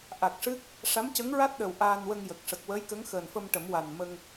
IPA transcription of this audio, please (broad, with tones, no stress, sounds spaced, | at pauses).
ʔ a˨˩ k̚ ʂ ɨ˦˥ k̚ | ʂ a˧˥ m c ə˧˥ ŋ ɹ a˦˥ t̚ ɗ ə˨˩ w ʔ aː˧ n w ə˧ ŋ j ə˨˩ k̚ ʂ ə˨˩ k̚ w əː˧˥ j k ə˧˥ ŋ x əː˨˩ n f ə˧ m ʈ ə˨˩˦ m w a˨˩ n m ə˧ ŋ